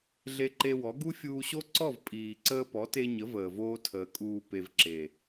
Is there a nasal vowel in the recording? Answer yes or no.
no